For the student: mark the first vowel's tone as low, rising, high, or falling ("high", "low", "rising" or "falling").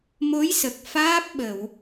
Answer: rising